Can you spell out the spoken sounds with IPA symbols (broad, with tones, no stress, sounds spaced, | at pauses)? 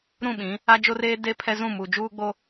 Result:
ɾ ũ˦˨ ɓ ĩ˨˦ | a˦ d͡ʒ o˦ r eː˦ d e˦ pʰ ɛ˦ z ũ˦˨ m u˨ d͡ʒ uː˦ ɡ͡b o˦